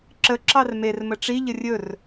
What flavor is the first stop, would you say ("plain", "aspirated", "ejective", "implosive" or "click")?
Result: click